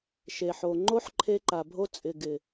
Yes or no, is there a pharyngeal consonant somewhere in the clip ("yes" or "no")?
yes